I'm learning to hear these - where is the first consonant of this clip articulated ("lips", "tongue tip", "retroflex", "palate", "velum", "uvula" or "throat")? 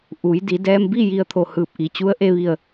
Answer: throat